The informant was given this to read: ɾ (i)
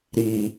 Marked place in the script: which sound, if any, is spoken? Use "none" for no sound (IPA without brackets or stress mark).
i